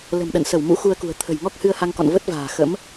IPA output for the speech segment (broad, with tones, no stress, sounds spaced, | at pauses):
l ə̤˨˩ m ɗ ə̰˧˨ n s ə˧˩ w m ṵ˧˥ x u˧ ə̯ k ṳ˨˩ ə̯ t̪ʰ ə̤˨˩ j ŋ ɔ˦˥ k̚ h ɨ˧ ə̯ h a˧ ŋ k ɔ̰˧˨ n v ə˦˥ t̚ v a̤ː˨˩ x ə̰˧˥ m